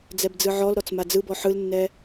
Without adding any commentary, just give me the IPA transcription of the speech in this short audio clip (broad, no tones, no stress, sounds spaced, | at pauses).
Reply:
d͡z ɛ b d͡z ɯ ʕ ɔ l ɾ ɔ t͡s m a d͡z ɯ b ɔ ħ ɯ l nː ɛ